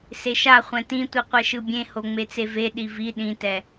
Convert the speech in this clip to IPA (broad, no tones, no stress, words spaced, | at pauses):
seʃaχʷɛ̃ tĩtʷi qʷɛʃɯbʲẽho ŋ͡met͡seveɗi vi ɗĩtɛ